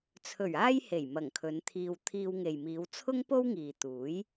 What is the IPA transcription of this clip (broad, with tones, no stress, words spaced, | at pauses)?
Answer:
t͡sʰɵ˨˩ɥ aː˥jhe˨˩j mɐ˨˩ŋkʰɵ˨˧nt̪ʰiː˧w t̪ʰiː˧wŋe˨jmiː˨˧w t͡sʰʊ˥ŋ po˥wŋiː˨ t̪uː˨˥j